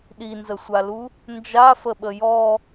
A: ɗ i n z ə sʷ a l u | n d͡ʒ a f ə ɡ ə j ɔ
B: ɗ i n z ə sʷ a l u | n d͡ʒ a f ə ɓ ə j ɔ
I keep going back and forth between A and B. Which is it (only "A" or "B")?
B